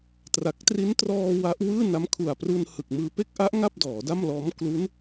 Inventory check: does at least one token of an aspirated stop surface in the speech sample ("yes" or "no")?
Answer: yes